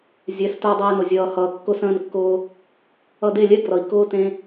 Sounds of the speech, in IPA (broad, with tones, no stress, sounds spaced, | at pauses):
zʲ ɛ˨˦ s t ʊː˧ dˤ eː˧ n ʊ˨ zʲ ʌː˨ h ʌː˨ kː ʊ˧ s ə̃ː˧ n kː ʊː˧ | ʌ˧ d e˦˨ lʲ ɛ˦ ɡ r ʌ˨ i̯ k ʊː˦ t ẽ˦